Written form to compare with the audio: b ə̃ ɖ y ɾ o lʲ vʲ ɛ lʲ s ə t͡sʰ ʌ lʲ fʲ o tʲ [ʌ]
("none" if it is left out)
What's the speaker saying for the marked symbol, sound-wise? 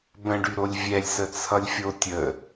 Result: ə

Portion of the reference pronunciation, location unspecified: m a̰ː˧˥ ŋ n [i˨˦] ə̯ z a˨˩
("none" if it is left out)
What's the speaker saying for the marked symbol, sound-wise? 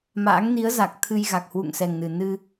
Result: i˨˦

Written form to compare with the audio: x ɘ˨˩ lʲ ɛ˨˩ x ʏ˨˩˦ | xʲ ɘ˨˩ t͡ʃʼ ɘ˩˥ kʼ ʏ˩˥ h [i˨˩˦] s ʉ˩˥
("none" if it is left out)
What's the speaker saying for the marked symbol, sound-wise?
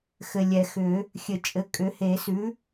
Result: e˨˩˦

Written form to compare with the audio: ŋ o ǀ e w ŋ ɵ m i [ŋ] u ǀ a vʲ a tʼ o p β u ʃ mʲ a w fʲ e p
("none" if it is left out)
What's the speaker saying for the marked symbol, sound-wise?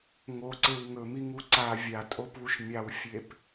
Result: ŋ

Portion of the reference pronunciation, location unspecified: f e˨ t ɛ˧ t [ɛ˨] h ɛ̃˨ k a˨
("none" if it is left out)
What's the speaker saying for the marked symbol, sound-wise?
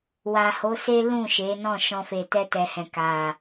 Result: ɛ˨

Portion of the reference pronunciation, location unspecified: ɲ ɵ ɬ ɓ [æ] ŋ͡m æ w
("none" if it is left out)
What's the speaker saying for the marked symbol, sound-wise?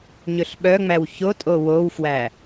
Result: œ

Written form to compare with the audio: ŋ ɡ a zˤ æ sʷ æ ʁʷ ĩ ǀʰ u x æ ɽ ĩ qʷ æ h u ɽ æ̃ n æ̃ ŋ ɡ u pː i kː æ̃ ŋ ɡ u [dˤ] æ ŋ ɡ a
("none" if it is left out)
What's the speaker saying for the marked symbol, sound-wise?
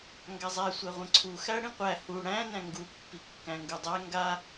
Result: dˤ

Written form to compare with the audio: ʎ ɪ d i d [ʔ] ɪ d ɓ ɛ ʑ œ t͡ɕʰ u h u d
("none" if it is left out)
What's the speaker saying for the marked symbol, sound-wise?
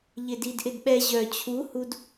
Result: ʔ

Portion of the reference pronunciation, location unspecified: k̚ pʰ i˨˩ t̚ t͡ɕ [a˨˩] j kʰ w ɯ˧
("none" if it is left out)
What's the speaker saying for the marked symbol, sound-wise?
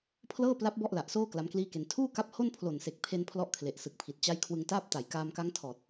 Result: a˦˥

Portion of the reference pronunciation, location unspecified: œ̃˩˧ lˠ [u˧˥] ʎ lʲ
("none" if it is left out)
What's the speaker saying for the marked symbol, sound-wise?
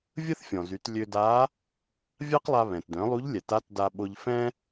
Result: u˧˥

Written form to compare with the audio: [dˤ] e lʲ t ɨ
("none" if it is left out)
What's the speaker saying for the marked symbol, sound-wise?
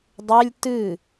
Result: dˤ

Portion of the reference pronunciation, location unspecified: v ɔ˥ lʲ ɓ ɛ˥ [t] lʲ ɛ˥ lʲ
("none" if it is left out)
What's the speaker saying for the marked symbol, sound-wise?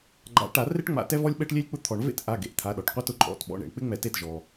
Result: ʈ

